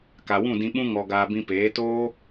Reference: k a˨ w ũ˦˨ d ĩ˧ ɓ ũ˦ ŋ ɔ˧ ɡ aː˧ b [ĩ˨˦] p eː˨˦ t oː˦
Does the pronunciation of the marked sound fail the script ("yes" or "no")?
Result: yes